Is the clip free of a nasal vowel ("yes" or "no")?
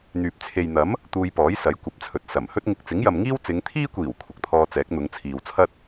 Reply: yes